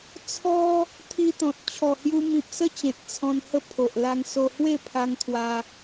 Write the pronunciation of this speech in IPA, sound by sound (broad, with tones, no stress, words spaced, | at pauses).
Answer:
t͡sʰɔ˦ | t̪ʰi˧t̪ɔ̃˨t̚ t͡ɕʰɔ˨˩hju˧mĩ˨p̚ sə˦t͡ɕẽ˨t̚ t͡sʰɔ̃˧nhə˥˧ pʰo˨ʔla˧ŋso˧ hwe˥˧pʰa˧ŋ t̪ʰwa˧